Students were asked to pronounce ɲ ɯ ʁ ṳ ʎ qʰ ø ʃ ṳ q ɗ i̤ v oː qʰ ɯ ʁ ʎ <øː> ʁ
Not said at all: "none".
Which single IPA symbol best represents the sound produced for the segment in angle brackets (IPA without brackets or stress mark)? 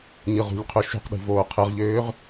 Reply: øː